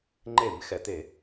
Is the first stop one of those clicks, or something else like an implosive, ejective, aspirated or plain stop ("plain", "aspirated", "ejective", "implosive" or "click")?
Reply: click